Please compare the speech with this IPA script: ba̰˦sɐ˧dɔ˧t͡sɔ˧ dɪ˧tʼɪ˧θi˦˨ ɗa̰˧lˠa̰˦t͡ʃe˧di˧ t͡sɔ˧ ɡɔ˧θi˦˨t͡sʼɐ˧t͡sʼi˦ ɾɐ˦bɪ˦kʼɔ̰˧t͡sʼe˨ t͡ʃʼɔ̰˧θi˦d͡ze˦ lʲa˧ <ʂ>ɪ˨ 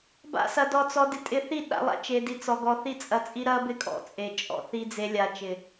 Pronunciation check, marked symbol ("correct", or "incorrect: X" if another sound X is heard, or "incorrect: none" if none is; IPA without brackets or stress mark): incorrect: t͡ʃ